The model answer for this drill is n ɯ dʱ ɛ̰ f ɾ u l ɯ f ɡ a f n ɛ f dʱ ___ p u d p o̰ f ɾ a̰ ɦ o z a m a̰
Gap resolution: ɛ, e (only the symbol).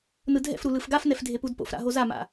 e